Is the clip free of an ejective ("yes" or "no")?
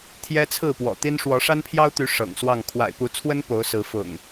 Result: yes